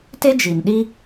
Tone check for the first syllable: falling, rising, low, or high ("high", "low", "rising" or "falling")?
high